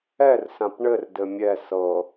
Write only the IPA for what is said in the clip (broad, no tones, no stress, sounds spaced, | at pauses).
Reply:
ɛ r s ã p ɳ ɘ r d ɘ mʲ ɛ s ɤ